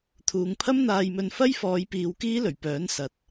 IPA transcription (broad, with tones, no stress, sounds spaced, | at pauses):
t̪ʰ uː˨ ŋ pʰ ɐ˥ m n̪ aː˧ j m ɵ˧ n f ɐ˥ j f ɔː˨˧ j p iː˨˧ w k iː˥ l ɵ˨˩ ɥ p œː˨˥ n s ɐ˨ t̚